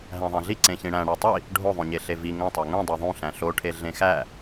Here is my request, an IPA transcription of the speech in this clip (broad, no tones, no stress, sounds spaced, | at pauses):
ɦ æ̃ ðˤ æ̃ ɮ i ǀ ẽ ç ĩ ɽ æ̃ ɽ æ tˤ i | ɖʱ o ðˤ õ ɲ e ɬ e v i ŋ õ tˤ æ ŋ ũ dˤ e ðˤ ũ ɬ æ̃ ɬ o ʈʰ e ɮ ẽ x æ